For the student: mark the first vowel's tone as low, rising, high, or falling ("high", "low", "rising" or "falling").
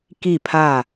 falling